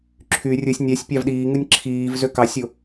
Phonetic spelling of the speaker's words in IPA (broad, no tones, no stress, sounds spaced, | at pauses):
ǁʰ y rʲ ɯ sʲ nʲ æ sʲ pʲ ɑ v ɗ iː ŋ ɯ nʲ ǁʰ iː v z ø k ɑ sʲ o